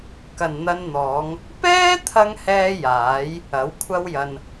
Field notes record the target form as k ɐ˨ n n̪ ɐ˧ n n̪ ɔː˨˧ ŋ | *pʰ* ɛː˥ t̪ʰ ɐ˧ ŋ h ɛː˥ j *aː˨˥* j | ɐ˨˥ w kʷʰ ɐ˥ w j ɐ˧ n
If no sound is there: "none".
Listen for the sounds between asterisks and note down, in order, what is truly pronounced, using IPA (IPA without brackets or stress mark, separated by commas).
p, aː˨˥